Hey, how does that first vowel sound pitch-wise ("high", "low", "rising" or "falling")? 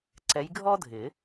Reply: rising